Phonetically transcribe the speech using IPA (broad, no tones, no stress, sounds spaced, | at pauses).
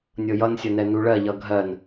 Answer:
nʲ ɤ j ʌ n sʲ ʌ n ɛ n u ɭ ɜ ʎ ʌ ɡʱ ɜ n